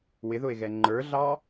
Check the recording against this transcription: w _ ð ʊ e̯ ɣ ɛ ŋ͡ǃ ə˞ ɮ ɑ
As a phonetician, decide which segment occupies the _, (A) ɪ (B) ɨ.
A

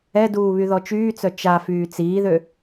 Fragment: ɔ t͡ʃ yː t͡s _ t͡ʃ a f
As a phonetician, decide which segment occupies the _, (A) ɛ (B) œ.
B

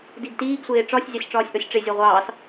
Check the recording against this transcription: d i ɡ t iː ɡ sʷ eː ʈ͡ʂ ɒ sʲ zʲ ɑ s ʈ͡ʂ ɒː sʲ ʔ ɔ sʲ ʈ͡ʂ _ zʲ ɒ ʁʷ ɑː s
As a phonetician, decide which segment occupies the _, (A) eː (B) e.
B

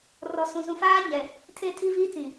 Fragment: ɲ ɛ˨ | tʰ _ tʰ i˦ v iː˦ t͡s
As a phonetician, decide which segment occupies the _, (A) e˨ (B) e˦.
B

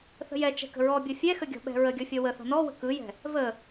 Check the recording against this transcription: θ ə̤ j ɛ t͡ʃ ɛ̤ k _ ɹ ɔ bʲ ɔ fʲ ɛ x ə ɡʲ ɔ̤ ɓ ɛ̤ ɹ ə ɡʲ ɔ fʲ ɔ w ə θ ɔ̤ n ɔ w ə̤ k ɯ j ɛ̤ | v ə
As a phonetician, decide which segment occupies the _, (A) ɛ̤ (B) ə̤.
B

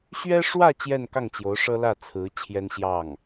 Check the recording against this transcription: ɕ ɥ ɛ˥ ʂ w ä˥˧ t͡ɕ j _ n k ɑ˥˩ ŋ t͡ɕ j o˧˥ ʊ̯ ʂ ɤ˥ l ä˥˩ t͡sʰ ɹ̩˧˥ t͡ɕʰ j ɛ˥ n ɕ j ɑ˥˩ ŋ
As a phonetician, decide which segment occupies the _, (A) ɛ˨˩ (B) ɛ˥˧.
B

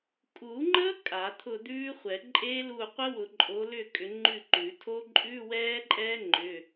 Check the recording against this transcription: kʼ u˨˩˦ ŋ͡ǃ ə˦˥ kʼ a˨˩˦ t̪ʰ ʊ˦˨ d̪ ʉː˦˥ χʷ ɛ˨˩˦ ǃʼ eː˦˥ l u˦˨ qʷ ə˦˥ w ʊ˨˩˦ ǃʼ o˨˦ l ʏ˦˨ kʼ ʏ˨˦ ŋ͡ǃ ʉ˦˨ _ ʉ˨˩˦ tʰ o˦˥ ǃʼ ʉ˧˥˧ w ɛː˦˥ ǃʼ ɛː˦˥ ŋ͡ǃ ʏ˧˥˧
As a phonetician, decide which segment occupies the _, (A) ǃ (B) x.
A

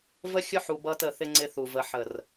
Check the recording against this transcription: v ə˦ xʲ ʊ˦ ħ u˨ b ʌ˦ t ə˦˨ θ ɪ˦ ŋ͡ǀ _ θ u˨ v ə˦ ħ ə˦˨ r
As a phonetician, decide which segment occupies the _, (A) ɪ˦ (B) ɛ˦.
A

